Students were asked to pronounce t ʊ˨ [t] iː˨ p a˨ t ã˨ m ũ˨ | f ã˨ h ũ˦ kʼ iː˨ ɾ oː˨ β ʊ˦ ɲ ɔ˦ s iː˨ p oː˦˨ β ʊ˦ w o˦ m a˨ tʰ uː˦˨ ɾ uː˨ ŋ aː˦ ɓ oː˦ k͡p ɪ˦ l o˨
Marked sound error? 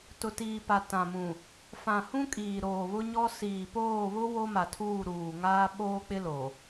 no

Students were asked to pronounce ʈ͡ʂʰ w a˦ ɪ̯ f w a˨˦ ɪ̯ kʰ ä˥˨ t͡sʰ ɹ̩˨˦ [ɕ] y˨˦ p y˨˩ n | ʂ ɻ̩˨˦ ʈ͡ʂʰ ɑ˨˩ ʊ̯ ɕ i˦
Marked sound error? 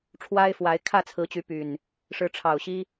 yes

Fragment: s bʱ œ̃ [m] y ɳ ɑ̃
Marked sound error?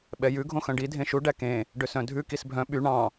yes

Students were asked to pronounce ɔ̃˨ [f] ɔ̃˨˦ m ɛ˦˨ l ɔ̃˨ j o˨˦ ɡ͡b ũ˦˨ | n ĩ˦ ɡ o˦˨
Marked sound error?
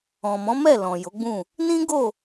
yes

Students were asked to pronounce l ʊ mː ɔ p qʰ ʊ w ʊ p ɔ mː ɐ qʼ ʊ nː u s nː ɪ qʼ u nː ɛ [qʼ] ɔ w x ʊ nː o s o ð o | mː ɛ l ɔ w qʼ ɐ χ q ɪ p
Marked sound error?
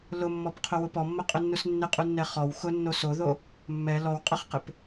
yes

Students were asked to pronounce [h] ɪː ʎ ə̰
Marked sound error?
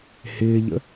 no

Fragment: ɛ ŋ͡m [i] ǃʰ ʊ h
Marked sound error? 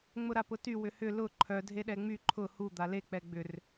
yes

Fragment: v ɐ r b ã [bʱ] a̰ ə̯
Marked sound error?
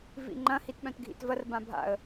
no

